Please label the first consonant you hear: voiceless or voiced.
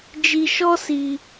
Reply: voiced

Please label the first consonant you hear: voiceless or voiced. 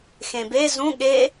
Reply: voiceless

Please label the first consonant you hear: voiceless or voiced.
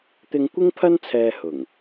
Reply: voiceless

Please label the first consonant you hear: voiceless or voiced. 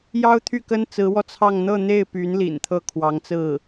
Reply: voiced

